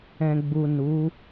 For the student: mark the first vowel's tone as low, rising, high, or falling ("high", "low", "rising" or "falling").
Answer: low